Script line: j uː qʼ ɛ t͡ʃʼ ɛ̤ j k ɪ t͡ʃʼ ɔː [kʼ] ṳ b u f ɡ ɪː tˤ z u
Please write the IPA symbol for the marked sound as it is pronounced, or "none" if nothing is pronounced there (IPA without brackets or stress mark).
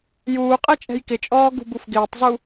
ɡ